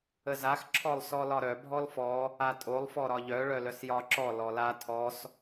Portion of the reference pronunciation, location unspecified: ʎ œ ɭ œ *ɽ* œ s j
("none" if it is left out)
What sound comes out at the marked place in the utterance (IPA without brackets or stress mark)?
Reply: l